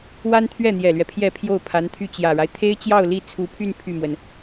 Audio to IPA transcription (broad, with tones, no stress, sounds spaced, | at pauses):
w a˥ n t̪ʰ ɥ ɛ˥˩ n̪ j ɛ˨˩ l ɥ ɛ˦ pʰ j ɛ˥˧ pʰ j o˥˩ ʊ̯ pʰ a˧˥ n t̪ʰ y˥˩ t͡ɕ j ä˨˩ ɻ a˦ ɪ̯ t̪ʰ e˥ ɪ̯ t͡ɕ j ɑ˥˧ ʊ̯ l i˥˩ t͡sʰ u˧˥ pʰ y˥˧ n pʰ y˥˩ m w ə˩ n